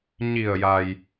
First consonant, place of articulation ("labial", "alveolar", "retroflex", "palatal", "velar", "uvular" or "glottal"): palatal